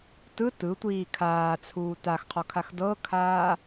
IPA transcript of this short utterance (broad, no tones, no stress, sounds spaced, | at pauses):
t ɯ t ɯ tʷ iː kʰ aː t͡sʰ uː t a x qʰ ɔ kʰ a x d ɤ kʰ aː